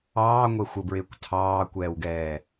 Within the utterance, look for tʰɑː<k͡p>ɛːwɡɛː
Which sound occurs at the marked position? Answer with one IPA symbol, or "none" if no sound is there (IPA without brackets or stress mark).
kʷ